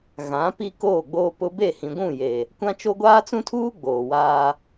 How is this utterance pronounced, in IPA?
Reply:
ɣ ã˨˦ p i˦ k oː˦˨ ɡ͡b oː˦ p ʊ˦ b e˦˨ h ĩ˨ ɡʷ ũ˦˨ j e˨ | kʷ ã˦ t͡ʃ o˦ ɡʷ aː˦ t͡s ũ˦ tʰ uː˦ ɡ͡b oː˨ w aː˦

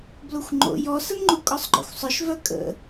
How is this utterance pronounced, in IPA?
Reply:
b l o xʷ ŋ͡ǃ o̰ j ɔ s ə n ŋ͡ǃ u kʼ ɔ sˤ ɡ͡ǃ ɔ̰ xʷ sˤ œ ʃ v œ kʼ ə̰

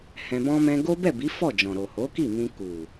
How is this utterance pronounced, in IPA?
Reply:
h ɛ̃˧ b ɔ̃˦ m ɛ̃˦ ɡ o˦ b ɛ˦˨ b i˨˦ f ɔ˦˨ d͡ʒ ɔ̃˨ ɾ o˨ h o˨˦ k i˦˨ m ĩ˧ k u˨

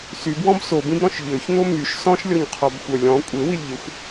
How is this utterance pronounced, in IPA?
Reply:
s y b w ɔ̃ b s o b ĩ b ɾ ɔ̃ ʃ ʎ ø ç n̪ o m y ʃ s ɔ̃ ʃ lʲ ɔ ɲ qʰ ɔ b xʷ œ lʲ ɔ̃ kʷʼ e w i lʲ ʎ e xʷ

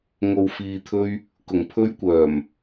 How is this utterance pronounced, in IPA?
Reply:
ŋ o˨ w f iː˨ t̪ʰ ɵ˧ ɥ | k ʊ˨˩ ŋ pʰ ɵ˥ ɥ kʷ œː˨˩ m

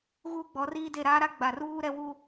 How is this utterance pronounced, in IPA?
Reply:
ɣ uː˦ ɡ͡b ɔ˨˦ r iː˦ d e˦˨ ɾ aː˦ ɾ a˦ ɡ͡b a˨ r uː˦ ɾ ɛ˦ w u˦

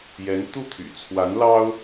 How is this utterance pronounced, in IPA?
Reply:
j ɛ˧˥ n t̪ u˥˩ t̪ʰ y̰˨˩ t͡sʰ w a˧˥ n l ɑ˥ ʊ̯

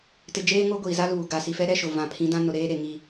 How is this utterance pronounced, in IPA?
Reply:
t ɪ˨ d͡ʒ eː˦ ŋ o˦ ɡʷ iː˨ z a˦ l uː˨ ɡ a˨ s i˨ f ɛ˦ ɾ ɛ˦ ʃ ʊ˨ v ã˨ pʰ ĩ˨˦ d ã˦ n ʊ˨ ɾ eː˦ ɾ e˨ ŋ i˦

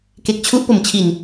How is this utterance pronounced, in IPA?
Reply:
k e˨˩ k̚ t͡ɕʰ u˦˥ ʔ p o˨˩ m t͡ɕʰ i˨˩ n

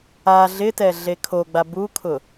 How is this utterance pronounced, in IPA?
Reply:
a ɮ ɪ t ɛ ɮ e kʰ o ɡ͡b a b u kʰ ʊ

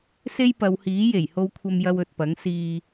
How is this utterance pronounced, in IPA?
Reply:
s e˥ j p ɐ˨˧ w h iː˨˥ j e˨˩ j h o˧ w kʷʰ ɐ˧ m j ɐ˧ w ɵ˨ t̚ p ɐ˨˥ ŋ s iː˧

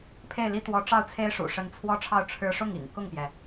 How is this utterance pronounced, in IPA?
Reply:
pʰ e˥˩ ɪ̯ l i˥ t̪ w ɔ˧˥ ʈ͡ʂ ɑ˥˩ ʊ̯ t͡sʰ e˥ ɪ̯ ʂ ṵ˨˩ ʂ ə˧˥ n t͡sʰ w ɔ˥ ʈ͡ʂʰ ɑ˥˩ ʊ̯ ʈ͡ʂʰ ɻ̩˥ ʂ ʊ˥˩ ŋ ḭ˨˩ ŋ k ʊ˥˩ ŋ p j ɛ˩

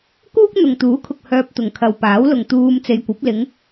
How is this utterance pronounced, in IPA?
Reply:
k uː˥ k̚ n̪ ʊ˨ ŋ t̪ uː˨˥ kʰ ʊ˨ k̚ h œː˧ p̚ t̪ ʊ˨ ŋ kʰ ɐ˨ w p aː˨˥ w l ʊ˨ ŋ t̪ uː˧ m t͡s e˨ j kʷ ɐ˨˥ p̚ l ɪ˨˧ ŋ

